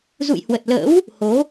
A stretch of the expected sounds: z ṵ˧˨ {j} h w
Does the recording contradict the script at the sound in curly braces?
no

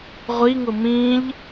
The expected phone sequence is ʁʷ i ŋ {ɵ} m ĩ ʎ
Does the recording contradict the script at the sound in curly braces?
yes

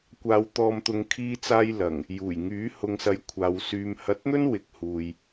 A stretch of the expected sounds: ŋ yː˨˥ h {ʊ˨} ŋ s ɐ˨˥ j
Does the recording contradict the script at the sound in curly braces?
no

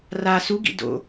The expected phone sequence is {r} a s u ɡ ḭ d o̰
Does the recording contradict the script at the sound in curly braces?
no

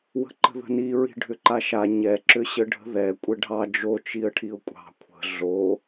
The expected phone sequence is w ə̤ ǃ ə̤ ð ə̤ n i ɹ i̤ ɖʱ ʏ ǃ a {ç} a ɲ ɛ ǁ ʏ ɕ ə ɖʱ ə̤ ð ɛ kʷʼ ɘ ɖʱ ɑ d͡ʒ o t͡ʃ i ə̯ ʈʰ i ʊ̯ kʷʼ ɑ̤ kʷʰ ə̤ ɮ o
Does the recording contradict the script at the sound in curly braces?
yes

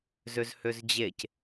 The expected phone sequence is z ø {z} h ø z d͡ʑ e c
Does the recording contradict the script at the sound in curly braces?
no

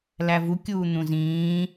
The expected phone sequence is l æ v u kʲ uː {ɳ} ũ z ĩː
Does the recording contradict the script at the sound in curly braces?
yes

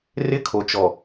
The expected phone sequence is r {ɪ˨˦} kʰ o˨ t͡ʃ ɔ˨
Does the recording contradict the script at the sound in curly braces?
yes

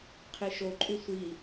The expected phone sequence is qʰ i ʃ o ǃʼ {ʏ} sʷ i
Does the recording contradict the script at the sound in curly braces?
yes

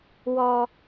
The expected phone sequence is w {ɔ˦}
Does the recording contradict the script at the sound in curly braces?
no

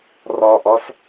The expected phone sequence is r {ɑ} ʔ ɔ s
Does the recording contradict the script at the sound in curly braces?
yes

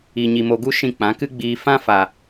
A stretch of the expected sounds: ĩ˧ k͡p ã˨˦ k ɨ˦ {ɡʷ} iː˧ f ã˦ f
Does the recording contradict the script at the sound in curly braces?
yes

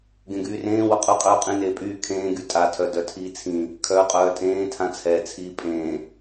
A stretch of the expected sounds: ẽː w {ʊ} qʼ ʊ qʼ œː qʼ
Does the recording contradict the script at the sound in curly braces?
no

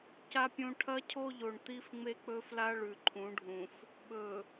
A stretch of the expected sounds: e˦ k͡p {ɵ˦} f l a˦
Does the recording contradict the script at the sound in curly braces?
no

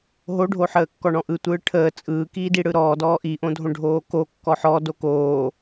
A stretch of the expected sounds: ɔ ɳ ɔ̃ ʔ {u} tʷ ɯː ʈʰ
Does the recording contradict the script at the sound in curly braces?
yes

